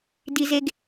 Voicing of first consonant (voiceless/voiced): voiced